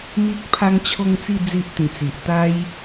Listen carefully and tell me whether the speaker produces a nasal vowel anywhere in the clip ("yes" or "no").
yes